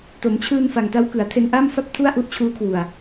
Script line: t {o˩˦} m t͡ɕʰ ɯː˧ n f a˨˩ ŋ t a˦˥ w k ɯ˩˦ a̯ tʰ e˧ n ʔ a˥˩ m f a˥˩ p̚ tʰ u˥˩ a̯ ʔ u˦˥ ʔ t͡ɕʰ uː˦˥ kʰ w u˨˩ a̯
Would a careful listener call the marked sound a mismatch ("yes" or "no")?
no